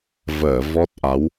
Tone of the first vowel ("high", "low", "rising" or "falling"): low